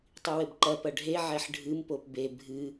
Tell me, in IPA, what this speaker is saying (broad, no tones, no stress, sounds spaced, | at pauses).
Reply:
tˤ i w ɘ b ǃ ɐ p ɐ ɖʱ e ʕ ɛ ħ ɖʱ ɨ m p o p b e bʱ ɨ